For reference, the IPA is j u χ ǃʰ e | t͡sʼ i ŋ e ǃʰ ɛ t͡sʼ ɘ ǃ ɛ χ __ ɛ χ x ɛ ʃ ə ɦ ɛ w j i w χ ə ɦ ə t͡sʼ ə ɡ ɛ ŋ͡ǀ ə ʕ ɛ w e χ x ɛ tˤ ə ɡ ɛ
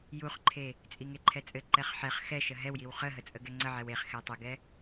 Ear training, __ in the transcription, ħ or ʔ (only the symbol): ħ